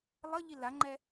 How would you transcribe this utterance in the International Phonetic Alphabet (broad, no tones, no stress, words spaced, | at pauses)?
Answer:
lˠʌ ʎilaŋ͡ǃɛ